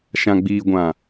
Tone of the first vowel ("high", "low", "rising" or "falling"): low